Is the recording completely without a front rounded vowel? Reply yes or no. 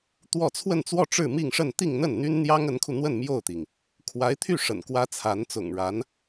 no